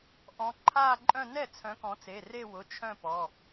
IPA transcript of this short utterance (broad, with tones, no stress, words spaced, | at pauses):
ʔɔ̃˨˦ ǃʰaː˥˧ǃʼœ̃˥˧ nɛ˥˩t͡sʰœ̃˨˦ kɔ̃˨˦t͡se˩˧˩re˥˧ wʊ˩˧˩t͡ʃʰœ̃˥˧ pɔ˩˧˩